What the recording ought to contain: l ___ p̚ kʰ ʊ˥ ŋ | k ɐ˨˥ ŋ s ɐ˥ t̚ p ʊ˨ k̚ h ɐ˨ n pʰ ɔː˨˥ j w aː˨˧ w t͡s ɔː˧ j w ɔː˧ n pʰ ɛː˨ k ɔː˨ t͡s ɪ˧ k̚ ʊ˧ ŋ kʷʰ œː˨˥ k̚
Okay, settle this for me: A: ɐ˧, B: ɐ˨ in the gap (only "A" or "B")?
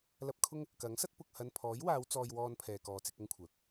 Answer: A